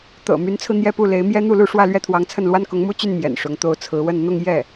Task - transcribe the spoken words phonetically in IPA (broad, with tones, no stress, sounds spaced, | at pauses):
t̪ ɤ̰˨˩ m y˧˥ n t͡sʰ ɹ̩˧ n̪ j ɛ˥˧ p u˥˩ l e˧˥ ɪ̯ m j ɛ˥ n̪ u˥˧ l u˥˧ ʂ w ä˥˧ l ɥ ɛ˥˩ t̪ʰ w ɑ˧˥ ŋ t͡sʰ ə˥˩ n l w a˥ n k ʊ˧˥ ŋ m u˥ t͡ɕ y˥˩ n m j ɛ̰˨˩ n ʂ ʊ˧˥ ŋ t̪ o˧˥ ʊ̯ t͡sʰ ɹ̩˧˥ w ə˥˧ n n̪ ʊ˥˧ ŋ j ɛ˥˩